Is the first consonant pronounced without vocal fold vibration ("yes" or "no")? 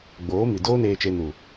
no